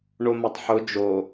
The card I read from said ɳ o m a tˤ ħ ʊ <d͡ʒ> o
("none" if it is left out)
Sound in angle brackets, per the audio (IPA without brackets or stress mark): d͡ʒ